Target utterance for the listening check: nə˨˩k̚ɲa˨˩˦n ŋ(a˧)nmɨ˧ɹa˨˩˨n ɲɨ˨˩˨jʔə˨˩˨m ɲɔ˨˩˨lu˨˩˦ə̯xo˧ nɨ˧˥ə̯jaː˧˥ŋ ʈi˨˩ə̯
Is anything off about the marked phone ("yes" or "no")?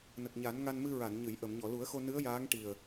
no